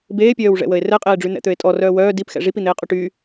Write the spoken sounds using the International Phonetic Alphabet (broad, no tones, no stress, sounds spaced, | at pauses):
b eː pʲ œː w ʐ ɛ̰ w ə e̯ r ɛ qʼ eː ɖ͡ʐ y n̪ ɛ̰ t̪ ø e̯ tʼ ɔ r œː w œː d i p x ɛ̰ ʐ i p i n̪ eː qʼ o ʈ y